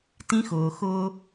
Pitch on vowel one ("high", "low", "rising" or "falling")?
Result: high